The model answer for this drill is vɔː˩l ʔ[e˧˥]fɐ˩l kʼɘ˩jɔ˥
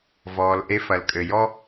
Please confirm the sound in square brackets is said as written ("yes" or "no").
yes